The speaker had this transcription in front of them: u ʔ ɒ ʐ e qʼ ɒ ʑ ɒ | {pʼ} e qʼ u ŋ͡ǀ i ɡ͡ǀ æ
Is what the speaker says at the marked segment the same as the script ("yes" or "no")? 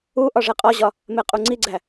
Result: no